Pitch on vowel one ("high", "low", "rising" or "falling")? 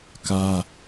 high